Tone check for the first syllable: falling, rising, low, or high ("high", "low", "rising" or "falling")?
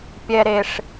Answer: low